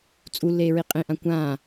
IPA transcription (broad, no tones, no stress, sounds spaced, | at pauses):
t͡sʼ u lː eː ɹ i qʼ ĩ ʔ ã kʷ ãː